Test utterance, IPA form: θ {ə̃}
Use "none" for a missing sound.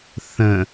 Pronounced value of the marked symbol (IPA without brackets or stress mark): ə̃